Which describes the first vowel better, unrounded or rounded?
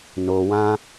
rounded